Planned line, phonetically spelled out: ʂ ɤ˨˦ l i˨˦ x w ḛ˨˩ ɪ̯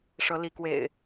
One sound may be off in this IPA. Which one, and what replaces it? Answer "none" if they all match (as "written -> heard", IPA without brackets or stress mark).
x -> k